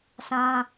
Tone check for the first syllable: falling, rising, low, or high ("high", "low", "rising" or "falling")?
high